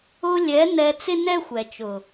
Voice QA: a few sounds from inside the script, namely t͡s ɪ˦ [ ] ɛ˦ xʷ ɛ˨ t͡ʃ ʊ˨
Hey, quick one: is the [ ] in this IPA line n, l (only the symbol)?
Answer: n